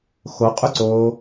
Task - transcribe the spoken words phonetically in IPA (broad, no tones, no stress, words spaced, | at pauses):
xoqʼʉǀoː